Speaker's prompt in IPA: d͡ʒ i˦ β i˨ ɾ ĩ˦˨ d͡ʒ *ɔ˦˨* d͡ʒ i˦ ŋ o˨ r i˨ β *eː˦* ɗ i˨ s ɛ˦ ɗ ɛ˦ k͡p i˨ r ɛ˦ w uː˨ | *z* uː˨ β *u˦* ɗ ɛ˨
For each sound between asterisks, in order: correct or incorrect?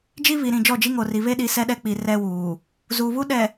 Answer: correct, incorrect, correct, correct

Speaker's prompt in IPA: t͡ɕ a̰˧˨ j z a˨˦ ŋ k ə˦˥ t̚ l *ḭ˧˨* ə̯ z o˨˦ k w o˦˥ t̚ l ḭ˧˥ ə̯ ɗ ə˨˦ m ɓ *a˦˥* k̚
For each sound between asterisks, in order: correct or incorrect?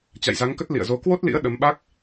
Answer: correct, correct

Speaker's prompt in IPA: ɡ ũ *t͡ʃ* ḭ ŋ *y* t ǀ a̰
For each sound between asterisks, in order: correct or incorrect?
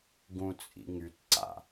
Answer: incorrect, correct

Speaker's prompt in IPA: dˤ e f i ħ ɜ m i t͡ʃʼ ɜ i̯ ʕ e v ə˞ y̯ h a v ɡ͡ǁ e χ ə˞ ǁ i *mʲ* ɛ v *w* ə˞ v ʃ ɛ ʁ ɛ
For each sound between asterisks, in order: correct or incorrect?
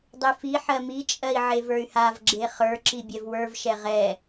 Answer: incorrect, correct

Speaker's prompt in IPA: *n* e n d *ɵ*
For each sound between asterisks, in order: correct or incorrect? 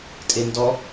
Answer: incorrect, incorrect

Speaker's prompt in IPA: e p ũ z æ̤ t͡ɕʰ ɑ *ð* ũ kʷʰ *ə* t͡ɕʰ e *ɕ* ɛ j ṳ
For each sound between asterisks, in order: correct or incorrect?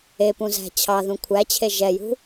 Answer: correct, incorrect, incorrect

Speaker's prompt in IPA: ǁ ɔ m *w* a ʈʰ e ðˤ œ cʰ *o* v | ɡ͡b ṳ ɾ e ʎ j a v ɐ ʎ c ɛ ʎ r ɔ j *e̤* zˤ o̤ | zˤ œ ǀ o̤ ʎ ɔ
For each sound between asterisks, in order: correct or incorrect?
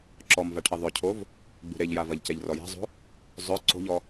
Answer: incorrect, correct, correct

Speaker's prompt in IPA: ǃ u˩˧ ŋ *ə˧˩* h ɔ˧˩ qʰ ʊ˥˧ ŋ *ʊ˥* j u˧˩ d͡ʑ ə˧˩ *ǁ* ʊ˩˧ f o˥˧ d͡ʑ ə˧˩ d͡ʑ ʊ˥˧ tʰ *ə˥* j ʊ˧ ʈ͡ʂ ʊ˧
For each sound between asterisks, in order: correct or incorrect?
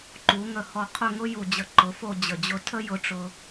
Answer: correct, correct, incorrect, correct

